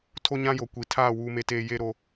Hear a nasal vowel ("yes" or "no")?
yes